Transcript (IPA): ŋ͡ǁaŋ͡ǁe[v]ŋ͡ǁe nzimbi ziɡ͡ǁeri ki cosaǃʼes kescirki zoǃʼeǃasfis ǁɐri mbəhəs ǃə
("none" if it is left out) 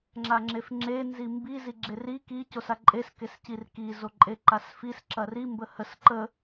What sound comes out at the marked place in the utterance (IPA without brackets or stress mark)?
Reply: f